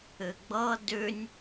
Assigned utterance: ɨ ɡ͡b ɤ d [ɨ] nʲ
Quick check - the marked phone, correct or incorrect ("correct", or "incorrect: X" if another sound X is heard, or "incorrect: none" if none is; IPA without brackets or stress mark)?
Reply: incorrect: ʉ